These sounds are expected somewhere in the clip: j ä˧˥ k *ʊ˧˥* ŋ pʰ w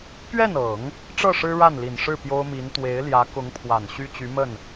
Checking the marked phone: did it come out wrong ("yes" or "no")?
no